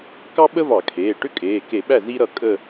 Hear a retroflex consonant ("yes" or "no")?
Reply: yes